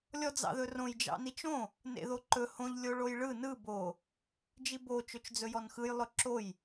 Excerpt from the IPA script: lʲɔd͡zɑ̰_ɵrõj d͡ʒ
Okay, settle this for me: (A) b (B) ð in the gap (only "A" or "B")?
B